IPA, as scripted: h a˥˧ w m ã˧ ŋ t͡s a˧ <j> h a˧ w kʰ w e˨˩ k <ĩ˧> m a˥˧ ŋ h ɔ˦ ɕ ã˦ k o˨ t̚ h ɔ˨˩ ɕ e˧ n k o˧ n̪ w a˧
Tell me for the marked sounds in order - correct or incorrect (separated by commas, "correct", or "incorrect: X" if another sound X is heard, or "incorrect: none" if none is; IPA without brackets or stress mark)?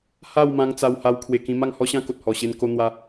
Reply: incorrect: w, correct